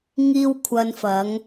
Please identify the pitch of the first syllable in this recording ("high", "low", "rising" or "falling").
high